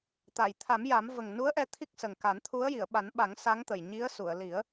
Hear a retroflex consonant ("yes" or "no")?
no